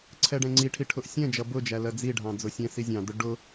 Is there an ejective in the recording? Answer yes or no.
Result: no